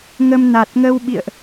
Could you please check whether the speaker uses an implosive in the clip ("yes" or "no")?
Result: yes